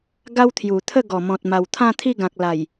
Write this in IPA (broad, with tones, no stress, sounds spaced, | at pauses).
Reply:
ɡ a˦ w t̪ʰ j u˨˩ t̪ʰ ə˥˧ ɡ ɔ˨˩ m ɔ̃˨ t̚ m a˨˩ w t̪ʰ ã˥˧ t̪ʰ i˥˧ ɡ ã˨ k̚ l a˨˩ j